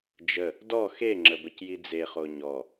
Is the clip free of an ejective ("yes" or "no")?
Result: yes